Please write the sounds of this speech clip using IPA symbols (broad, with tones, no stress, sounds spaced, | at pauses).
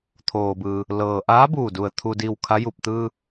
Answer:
t̪ʰ oː˩ b ɯː˩ | l ɤː˩ ʔ aː˧˥ b uː˧˩ d u˩ ə̯ t̪ʰ u˧ d iː˧ w kʰ a˧˥ j u˧˩ p̚ t̪ ɯː˧